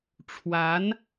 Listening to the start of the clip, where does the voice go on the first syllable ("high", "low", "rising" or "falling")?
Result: rising